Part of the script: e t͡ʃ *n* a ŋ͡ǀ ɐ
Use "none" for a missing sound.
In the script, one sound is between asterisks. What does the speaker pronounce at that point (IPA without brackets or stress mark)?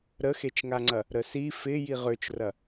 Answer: ŋ